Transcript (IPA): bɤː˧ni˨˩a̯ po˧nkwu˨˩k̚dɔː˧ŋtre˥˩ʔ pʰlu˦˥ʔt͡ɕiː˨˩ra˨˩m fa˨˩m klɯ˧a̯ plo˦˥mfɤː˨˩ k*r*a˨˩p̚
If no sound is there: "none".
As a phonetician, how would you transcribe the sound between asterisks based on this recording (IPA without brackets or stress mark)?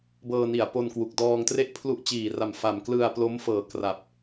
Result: r